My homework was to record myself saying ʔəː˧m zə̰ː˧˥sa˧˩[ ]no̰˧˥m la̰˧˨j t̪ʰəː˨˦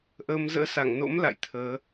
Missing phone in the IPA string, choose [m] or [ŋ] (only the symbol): ŋ